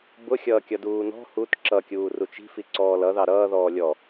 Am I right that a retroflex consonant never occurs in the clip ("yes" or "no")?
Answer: yes